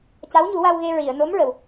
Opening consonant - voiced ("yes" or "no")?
no